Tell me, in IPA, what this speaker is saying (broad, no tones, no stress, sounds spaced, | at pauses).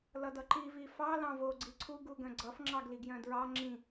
l ʌ d ʌ ǃ i v i f ɑ l ɑ̃ v o ɡ͡ǀ i ǀʰ u ɡ u ɡ œ̃ ɡ͡ǀ ʌ f ŋ͡ǁ ɑ ɡ l i ɡ j œ̃ d ɹ ɑ ŋ͡ǁ ĩ